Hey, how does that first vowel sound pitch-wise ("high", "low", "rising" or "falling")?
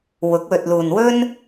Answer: rising